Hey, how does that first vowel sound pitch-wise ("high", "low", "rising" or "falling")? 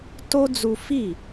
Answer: high